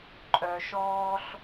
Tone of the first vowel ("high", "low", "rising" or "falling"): low